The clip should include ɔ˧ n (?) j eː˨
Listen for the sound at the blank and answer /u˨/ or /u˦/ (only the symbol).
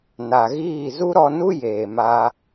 u˦